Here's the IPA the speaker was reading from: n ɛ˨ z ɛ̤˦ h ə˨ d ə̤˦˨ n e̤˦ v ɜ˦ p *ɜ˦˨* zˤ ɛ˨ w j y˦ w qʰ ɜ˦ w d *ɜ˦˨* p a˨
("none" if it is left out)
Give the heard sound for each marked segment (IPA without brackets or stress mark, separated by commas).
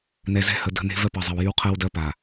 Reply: ɜ˨, ɜ˦